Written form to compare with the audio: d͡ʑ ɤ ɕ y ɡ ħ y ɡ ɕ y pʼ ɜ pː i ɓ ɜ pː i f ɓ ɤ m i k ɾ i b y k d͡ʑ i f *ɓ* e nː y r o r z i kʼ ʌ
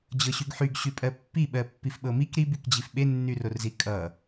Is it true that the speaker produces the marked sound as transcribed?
yes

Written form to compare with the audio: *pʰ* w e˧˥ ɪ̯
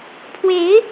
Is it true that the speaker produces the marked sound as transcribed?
yes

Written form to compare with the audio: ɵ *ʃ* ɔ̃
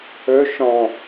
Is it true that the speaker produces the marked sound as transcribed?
yes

